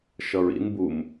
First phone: ʃ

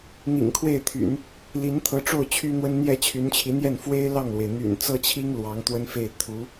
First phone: n̪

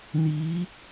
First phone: n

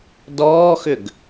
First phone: d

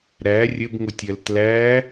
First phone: ɾ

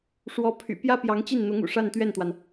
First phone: ʂ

